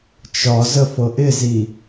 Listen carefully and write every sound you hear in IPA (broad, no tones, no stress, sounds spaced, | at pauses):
t͡ʃ ɒ z ə f ɤ ʔ ɪ z i